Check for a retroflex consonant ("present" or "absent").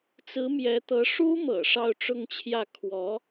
present